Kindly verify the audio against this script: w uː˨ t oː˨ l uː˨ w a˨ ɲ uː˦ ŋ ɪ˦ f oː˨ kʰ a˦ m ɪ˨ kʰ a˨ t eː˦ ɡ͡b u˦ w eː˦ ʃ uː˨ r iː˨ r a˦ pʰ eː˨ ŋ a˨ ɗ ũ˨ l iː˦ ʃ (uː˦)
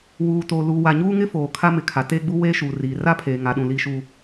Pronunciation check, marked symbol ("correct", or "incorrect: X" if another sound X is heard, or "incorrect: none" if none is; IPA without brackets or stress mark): correct